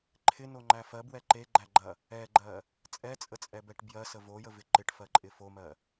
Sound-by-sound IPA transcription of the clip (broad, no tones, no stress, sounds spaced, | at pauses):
ǃʰ ɪ n o ŋ͡ǃ æ f ɜ b w ɛ ǃ e ɡ͡ǃ æ ɡ͡ǃ ɐ | ɛ ɡ͡ǃ ɜ | t͡sʼ ɛ t͡sʼ ə t͡sʼ ɛ b ɛ ʈ b j ɜ s ə v o j ə v ɪ ǃ ɪ ʈ f ɜ ǃʼ ɪ f o m ɜ